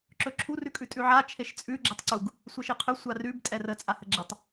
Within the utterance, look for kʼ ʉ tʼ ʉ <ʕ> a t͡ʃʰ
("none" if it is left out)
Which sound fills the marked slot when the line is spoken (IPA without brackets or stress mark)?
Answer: ʕ